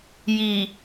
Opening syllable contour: low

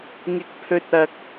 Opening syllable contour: rising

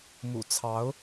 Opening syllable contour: low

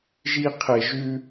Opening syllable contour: high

